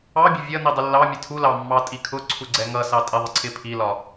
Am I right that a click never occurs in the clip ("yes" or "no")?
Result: no